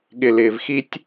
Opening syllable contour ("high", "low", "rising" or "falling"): low